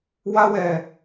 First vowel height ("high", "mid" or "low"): low